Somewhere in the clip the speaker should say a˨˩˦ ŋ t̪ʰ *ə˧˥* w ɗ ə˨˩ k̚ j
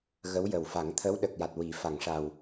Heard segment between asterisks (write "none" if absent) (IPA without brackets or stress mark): ə˧˥